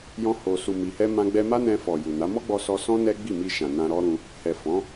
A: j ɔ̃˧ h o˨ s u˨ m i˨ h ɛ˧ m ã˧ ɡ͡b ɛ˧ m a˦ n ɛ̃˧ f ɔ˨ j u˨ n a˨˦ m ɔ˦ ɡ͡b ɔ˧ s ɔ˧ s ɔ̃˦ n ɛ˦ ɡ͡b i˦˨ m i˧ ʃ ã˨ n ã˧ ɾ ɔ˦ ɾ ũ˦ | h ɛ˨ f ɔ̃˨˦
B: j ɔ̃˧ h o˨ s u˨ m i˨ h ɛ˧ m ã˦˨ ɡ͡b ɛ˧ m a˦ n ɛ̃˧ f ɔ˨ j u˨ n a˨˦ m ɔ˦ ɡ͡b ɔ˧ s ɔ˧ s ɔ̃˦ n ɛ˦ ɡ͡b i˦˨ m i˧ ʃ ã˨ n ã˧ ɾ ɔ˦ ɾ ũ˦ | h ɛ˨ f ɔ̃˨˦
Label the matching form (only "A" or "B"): A